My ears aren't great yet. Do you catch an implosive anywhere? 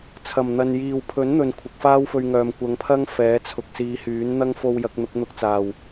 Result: no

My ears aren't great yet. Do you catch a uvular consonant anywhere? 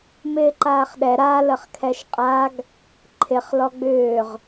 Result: yes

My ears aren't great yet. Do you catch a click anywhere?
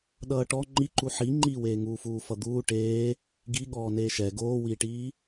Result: yes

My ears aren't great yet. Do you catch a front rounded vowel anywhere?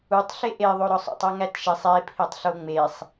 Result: no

